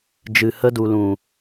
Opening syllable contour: low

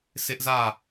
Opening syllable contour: high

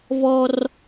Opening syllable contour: high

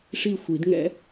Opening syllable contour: falling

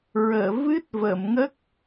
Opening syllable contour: low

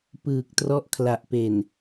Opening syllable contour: low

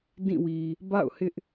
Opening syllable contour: falling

